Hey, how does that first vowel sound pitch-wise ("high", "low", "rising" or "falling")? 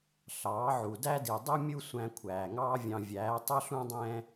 rising